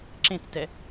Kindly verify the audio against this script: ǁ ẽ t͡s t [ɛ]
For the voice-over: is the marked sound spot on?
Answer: yes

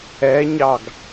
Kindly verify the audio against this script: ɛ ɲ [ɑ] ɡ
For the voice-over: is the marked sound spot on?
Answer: yes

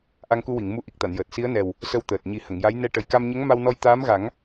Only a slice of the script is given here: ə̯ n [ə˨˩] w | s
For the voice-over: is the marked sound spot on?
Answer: no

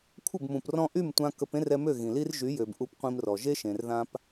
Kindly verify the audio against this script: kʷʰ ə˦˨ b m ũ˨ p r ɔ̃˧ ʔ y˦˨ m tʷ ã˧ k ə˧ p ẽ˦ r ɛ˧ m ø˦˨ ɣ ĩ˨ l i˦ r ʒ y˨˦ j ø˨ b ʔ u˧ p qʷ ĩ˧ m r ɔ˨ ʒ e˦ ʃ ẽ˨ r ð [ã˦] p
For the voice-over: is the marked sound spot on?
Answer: no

